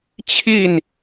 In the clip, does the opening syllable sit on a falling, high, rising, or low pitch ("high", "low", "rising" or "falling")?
falling